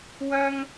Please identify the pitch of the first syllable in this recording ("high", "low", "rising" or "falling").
high